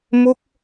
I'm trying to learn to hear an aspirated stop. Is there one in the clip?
no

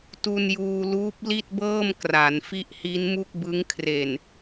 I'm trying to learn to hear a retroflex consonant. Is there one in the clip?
no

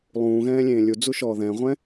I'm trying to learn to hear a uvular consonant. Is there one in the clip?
yes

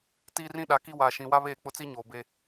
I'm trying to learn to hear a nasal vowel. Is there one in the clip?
yes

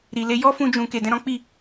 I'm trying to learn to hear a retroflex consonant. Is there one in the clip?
no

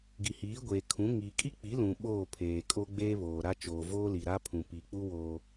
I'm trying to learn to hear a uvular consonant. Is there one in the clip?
no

